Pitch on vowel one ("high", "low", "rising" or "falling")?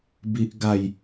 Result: high